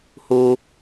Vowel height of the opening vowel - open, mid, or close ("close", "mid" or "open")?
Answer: close